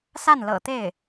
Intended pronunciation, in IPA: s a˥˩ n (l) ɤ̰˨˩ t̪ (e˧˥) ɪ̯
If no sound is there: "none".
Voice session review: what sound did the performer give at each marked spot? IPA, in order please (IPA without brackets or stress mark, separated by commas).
l, e˥˩